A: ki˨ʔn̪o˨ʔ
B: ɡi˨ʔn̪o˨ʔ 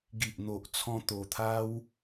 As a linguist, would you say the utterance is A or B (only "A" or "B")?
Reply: B